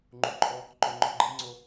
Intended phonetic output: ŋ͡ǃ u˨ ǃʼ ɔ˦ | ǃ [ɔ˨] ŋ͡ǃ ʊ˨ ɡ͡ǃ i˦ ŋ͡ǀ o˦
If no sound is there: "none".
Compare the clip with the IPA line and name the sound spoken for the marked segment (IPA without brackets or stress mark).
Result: o˨